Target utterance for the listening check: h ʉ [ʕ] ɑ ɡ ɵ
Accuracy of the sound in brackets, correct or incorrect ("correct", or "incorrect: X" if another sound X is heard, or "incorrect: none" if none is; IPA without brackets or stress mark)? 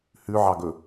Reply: correct